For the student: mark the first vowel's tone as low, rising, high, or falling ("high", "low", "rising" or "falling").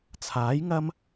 rising